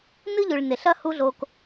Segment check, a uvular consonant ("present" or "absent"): absent